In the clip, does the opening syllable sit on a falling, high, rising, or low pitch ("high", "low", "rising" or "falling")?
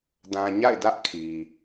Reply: low